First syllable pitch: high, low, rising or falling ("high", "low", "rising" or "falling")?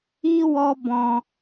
high